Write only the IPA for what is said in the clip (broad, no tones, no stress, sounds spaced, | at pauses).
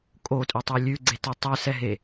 kʼ o tʼ ʉ tˤ e lʲ ʉ ɡ͡ǀ e t ɛ tˤ ʉ s ɛ ɦ e